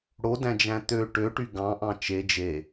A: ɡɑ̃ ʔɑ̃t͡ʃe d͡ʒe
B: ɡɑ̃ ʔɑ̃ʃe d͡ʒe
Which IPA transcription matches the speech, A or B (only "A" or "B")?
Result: A